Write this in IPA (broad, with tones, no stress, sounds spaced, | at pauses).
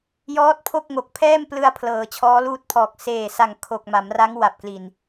j ɔː˦˥ t̚ pʰ o˥˩ k̚ ŋ o˨˩ k̚ pʰ ɛː˥˩ m p l ɯ˧ a̯ pʰ l ɤː˩˦ t͡ɕʰ ɔː˦˥ l uː˥˩ t̚ pʰ ɔː˨˩ k̚ s eː˨˩ s a˨˩ ŋ kʰ o˨˩ k̚ m a˩˦ m r a˦˥ ŋ w a˨˩ p̚ k l i˨˩ n